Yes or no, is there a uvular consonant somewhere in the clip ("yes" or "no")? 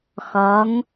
no